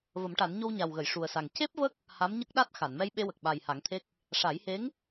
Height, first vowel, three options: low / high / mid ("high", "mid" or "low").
mid